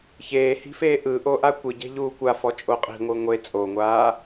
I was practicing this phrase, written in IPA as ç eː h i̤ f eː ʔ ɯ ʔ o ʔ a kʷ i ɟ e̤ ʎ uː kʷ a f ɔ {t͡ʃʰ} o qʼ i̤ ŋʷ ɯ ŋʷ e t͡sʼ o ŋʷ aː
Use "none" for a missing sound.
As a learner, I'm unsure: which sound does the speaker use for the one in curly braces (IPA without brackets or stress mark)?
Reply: t͡ʃʼ